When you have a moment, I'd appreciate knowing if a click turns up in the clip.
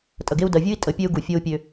no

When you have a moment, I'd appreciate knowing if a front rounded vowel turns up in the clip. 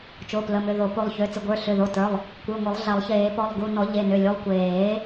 yes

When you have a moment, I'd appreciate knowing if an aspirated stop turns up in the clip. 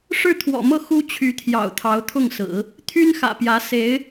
yes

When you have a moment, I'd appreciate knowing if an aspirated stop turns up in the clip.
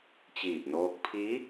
yes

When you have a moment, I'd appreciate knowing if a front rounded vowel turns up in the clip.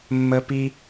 no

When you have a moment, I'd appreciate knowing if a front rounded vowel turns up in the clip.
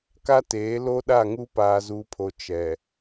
no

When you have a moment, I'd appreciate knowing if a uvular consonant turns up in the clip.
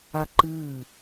no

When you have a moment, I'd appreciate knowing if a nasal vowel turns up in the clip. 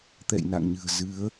no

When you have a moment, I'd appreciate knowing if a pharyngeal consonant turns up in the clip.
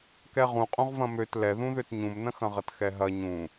no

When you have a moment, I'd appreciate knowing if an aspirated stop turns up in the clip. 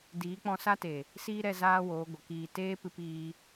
no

